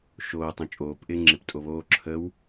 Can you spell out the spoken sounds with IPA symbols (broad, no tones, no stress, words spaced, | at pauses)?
ʃoː tˤõt͡ʃʼoːp ʔɪːŋ͡ǁeptʼoβoː ǁʰəw